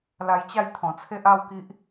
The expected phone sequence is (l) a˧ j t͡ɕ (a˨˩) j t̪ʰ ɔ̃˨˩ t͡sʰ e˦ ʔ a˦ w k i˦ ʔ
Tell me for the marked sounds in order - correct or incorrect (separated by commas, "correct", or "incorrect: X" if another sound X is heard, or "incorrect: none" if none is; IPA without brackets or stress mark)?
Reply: correct, incorrect: a˥˧